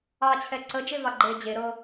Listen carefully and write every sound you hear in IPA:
ɑː t͡ɕʰ ɛ ǀ ə d͡ʒ e v ɑ ɡ͡ǃ eː d͡ʑ e ɾ ɤ

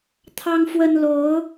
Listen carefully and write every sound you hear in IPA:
t̪ʰ ɑ˦ ŋ f w ə˦ n l o˨˦ ʊ̯

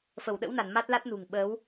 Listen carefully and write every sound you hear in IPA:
f ə˧˩ w ɗ ə̰˧˥ w n a˧˩ n m a˦˥ t̚ l a˦˥ t̚ n ṳ˨˩ ŋ ɓ əː˨˦ w

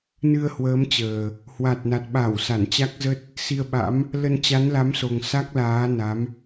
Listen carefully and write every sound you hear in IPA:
n ɨ˧ ə̯ h w əː˨˦ m t͡ɕ əː˨˩ | h w a˨˩ t̚ n a˨˩ t̚ ɓ a˧˩ w s a˧˩ n t͡ɕ a˦˥ k̚ z ə˦˥ t̚ | s i˧ ə̯ ɓ a̰˧˥ m | l ə˧ n t͡ɕ a˨˦ n l a˨˦ m s o˨˩ ŋ s a˦˥ k̚ l aː˨˦ n a˨˦ m

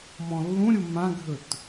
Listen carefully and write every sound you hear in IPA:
m ɔ̃ lː ũ ɾʲ u m ã ɡʱ ɵ t

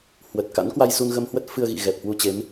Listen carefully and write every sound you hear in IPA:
h w ə˨˩ t̚ k a̰˧˥ n k w a˧ j s u˧ n ɣ ə˧ m h w ə˦˥ t̚ f ɨ˧ ə̯ ɣ ḭ˧˨ ɣ ɛ˨˩ p̚ h w u˧ t͡ɕ e˨˦ m

